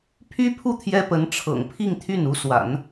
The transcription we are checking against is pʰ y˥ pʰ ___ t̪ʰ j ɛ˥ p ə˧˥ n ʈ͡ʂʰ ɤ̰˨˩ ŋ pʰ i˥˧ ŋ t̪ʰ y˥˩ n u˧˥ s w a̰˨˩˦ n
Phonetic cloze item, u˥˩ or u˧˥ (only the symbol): u˥˩